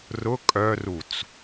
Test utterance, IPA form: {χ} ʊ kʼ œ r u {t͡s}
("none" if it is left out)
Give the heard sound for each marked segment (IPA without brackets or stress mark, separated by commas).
r, t͡s